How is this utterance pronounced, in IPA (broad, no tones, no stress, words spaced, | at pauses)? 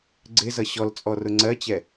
ɡ͡ǀɪzʌ ɕɔlt͡sʼɔrʊ ŋ͡ǀɜt͡ɕɛ